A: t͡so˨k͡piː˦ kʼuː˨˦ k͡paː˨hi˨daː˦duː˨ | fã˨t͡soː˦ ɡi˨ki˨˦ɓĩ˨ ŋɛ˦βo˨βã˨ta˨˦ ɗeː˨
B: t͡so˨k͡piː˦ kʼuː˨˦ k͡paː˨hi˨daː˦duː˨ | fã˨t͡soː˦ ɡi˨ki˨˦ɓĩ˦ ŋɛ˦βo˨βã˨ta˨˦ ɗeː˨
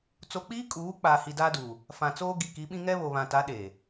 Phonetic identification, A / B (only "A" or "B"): B